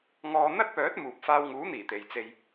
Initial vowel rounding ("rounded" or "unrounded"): rounded